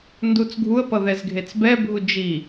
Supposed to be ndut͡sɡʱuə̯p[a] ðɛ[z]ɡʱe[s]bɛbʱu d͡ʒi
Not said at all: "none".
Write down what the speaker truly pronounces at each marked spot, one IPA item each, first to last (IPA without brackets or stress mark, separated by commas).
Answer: ʌ, z, t͡s